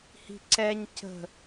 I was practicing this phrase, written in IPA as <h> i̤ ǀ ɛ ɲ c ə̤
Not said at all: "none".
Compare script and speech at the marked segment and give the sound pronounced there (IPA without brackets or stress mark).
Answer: h